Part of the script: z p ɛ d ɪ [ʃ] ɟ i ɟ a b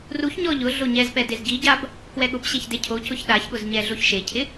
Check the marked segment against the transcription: incorrect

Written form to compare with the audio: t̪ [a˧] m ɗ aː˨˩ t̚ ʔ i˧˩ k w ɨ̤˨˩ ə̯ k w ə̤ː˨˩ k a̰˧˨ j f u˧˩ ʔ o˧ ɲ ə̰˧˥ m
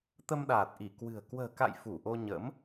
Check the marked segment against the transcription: incorrect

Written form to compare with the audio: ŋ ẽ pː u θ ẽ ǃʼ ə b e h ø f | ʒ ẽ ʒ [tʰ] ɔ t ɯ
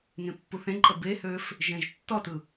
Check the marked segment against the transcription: incorrect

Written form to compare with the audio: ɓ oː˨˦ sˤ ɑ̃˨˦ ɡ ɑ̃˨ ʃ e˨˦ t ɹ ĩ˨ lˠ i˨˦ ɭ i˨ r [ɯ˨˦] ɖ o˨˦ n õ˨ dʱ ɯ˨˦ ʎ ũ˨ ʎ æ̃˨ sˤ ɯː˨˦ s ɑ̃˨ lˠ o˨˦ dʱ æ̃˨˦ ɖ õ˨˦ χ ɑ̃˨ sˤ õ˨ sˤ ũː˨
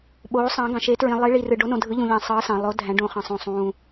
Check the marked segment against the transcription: incorrect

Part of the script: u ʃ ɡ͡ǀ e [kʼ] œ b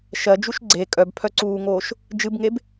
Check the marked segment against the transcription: correct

